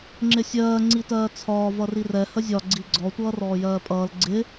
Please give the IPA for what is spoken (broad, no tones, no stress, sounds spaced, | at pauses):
ŋ͡ǁ ɪ sʲ ɜː ŋ͡ǀ i t ɜː t͡sʰ ɒː v ʌ r i r ɛ h ə zʲ ɒ ɡ͡ǀ i ɡ͡ǀ ɔ tʷ ʌː r ɔː j ɜː pʼ ʌː l ɡ͡ǀ ɪ